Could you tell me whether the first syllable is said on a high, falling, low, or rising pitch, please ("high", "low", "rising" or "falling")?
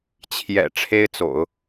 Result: low